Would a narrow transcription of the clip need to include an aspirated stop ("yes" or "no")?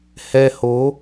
no